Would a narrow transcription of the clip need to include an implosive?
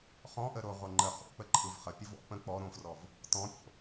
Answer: no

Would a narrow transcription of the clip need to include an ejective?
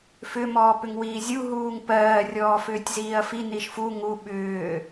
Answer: no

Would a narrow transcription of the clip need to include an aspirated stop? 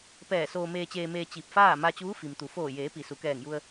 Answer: no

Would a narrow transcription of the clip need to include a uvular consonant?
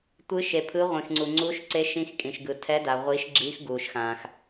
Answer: yes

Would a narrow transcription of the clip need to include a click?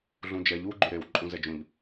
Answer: yes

